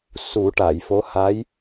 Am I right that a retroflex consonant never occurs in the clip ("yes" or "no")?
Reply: no